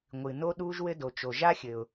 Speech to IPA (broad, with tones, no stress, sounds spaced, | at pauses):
ŋʷ ɨː˩ n o˥ ɗ uː˥ ʒ w ɘ˥ d o˩ t͡ʃ o˩ ʒ a˥ xʲ ɘ˩ ʊ̯